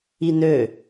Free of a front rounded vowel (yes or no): no